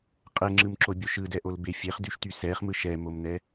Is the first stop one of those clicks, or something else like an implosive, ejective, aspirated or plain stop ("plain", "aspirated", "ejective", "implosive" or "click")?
ejective